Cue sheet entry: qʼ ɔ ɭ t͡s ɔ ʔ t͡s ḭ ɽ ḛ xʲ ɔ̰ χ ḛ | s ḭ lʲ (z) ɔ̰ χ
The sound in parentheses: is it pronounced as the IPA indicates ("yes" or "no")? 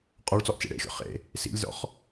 yes